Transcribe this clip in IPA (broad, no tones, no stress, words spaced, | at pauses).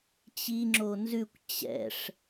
t͡ɕi ŋ͡ǁonzʉkʷ t͡ɕɛ̰ʂ